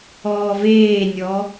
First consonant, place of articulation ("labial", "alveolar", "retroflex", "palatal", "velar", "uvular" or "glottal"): labial